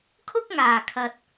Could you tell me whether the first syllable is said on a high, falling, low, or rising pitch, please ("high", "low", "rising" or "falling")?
high